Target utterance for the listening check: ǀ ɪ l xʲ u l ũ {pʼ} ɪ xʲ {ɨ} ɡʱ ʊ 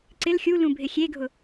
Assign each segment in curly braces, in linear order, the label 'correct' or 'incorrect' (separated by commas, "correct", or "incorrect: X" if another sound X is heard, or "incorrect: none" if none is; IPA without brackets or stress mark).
incorrect: bʱ, incorrect: e